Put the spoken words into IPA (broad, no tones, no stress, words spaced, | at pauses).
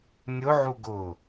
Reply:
nʲʊʕu ɡʊ